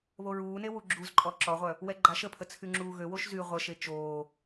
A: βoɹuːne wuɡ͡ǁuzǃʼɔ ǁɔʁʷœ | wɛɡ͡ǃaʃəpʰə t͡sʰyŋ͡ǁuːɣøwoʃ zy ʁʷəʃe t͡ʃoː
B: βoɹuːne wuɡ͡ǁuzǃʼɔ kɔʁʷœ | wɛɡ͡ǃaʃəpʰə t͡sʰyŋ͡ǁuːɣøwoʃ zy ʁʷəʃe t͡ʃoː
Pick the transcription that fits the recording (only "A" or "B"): A